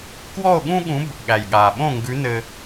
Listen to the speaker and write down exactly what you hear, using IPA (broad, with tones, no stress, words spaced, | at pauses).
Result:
kwɔ˥˨o̯ɠũ˥ɠũ˧˥b | ɠæ˨˩jɠa˨˩ɓõ˥˨ ŋɡʉ˧˥nɘ˧